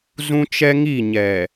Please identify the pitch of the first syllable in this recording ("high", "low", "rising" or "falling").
high